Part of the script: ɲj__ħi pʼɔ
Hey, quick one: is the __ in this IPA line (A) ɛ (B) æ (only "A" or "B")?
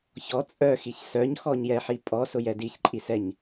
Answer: A